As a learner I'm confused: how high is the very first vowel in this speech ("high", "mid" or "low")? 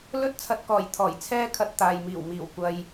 mid